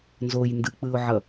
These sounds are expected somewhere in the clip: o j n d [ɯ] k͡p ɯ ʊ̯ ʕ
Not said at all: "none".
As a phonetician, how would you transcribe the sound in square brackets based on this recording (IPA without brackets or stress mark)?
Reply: ɯ